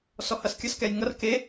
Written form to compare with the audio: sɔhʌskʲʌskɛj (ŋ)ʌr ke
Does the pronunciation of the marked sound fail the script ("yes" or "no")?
no